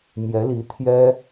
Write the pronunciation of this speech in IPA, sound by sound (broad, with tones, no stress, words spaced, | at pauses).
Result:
mjɛ˧˥li˧˥t̪ʰjɛ˥